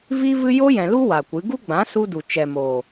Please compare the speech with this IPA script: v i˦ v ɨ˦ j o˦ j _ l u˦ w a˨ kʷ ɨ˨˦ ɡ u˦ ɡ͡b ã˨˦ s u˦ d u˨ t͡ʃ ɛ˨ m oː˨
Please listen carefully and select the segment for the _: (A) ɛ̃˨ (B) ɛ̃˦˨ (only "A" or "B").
A